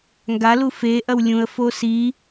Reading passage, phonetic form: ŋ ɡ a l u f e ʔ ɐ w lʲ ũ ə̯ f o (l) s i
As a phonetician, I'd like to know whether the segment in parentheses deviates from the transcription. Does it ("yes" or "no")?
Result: yes